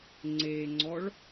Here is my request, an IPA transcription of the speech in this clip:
ŋ͡ǀ e ŋ͡ǀ ɔ ɭ

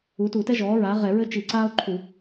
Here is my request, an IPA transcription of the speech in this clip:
u˩˥ t u˧˩˧ t ɛ˥ ʒ ɔː˩˥ ɹ aː˩˥ ʁ ɛ˧˩˧ ɹ ɘ˥ t͡ʃ i˧˩˧ ǀ aː˥ o̯ ǃʰ u˧˩˧

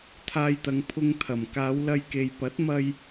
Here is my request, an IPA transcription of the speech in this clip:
t̪ʰ aː˧ j t̪ ɐ˨˧ ŋ pʰ ʊ˧ ŋ t̪ʰ ɐ˨˩ m k aː˨˧ w l ɐ˧ j k e˨ j p ɐ˨˥ t̚ m ɐ˧ j

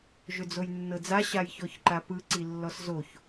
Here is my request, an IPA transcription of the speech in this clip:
ʒ ʏ d͡z o j nː ɤ d͡z a ɕ a j ç ɔ ç ǃ a p ɯ ǀ i lː ɔ s z o ç

